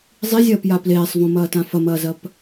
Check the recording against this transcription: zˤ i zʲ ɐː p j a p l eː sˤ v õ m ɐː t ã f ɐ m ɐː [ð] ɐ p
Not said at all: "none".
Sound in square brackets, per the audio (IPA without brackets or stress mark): z